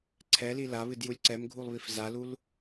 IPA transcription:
ǀʰ ɛ l i l a β ɨ d j u lʲ ǀ ɛ m ɡʱ u lˠ β i f z a l u l

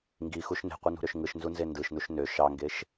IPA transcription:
ŋ ɡ i x u ʃ n e̤ qʷ ɯ n ṳ ɾ ø ʃ ŋ ɯ ʃ n z u n z e n d ɯ ʃ n u ʃ n ø ʃ ɑ ŋ ɡ e ʃ

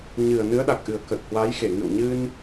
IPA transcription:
ɲ ɨ˨˩ ə̯ n ɨ˨˦ ə̯ ɗ a˨˩ k̚ ʔ ɨ˨˩ ə̯ k ə˨˩ t̚ h w a˨˦ j x e˧˩ ŋ ɨ̰˧˨ w ɲ ɨ˧ n

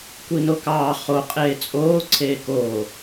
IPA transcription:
kʷ i n o k ɑː χ o qʼ eː t͡sʼ oː ǀʰ eː k oː

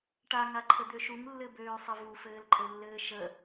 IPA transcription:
ʈ a ŋ a ǃʰ ə d̪ ø ʃ u ŋ lː ɘ b øː sˤ ɘ v u f ɘː l ǃʼ ɘ lː ɘː ʃ ə

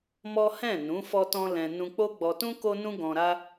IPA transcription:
m ɔ˦ h ɛ̃˦˨ n ũ˨˦ f ɔ˦ t ɔ̃˦ l ɛ̃˧ n ũ˧ k͡p o˦ ɡ͡b ɔ˧ t ũ˦ k o˦ n ũ˦ ɡ ɔ̃˧ ɾ a˦

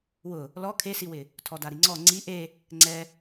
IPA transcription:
w ʊ | l ɔ kʰ e s i w ɪ | tʰ ɔ d a ɾ i ŋ͡ǀ ɔ ŋ͡ǀ i ʔ e | ŋ͡ǀ ɛ

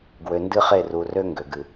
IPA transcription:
ɡ w ø˨ n d ɨ˦ χ e˦˨ r u˨ r ø˦ ŋ ɡ ø˨ ɡ ɨ˨

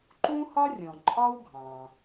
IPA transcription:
ǃ ũ˥ h ɒ˥ rʲ ɔ̃˩ ǃʼ ɒ˥ w ɡʱ ɑ̃˩

